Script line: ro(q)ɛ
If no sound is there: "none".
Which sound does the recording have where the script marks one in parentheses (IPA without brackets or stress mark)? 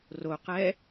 q